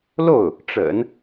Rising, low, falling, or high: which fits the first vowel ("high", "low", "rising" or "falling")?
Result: falling